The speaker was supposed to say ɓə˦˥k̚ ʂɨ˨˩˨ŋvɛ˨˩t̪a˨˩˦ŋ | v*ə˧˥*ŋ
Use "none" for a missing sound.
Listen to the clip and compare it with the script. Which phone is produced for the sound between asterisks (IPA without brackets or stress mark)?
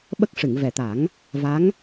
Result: a˧˥